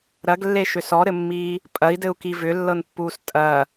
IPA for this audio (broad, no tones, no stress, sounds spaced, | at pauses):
ɾ ɐ ɡ lː e ʃ ʏ s ɔ ɾ ɘ mː iː | pʼ ɐ i̯ d ɘ u̯ k i v ʏ lː ɤ n pː uː s tʼ ɐ